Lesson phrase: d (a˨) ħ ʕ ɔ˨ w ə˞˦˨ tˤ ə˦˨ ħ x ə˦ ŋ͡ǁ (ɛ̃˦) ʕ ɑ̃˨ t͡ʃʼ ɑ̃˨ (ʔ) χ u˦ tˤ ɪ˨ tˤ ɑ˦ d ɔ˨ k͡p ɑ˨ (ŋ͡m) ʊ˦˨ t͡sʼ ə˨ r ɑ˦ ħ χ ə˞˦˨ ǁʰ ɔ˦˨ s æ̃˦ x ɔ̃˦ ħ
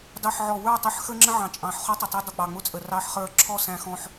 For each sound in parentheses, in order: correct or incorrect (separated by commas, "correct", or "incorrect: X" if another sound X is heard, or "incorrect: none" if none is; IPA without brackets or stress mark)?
incorrect: ɑ˨, incorrect: ə̃˦, incorrect: ħ, correct